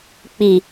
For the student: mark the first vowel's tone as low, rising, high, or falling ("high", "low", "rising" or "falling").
low